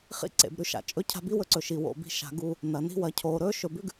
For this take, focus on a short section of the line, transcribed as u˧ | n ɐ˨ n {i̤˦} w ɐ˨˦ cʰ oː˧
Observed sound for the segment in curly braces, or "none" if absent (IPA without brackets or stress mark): i̤˦